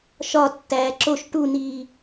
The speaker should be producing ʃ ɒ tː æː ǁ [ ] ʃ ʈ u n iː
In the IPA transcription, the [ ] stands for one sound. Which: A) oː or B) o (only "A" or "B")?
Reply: B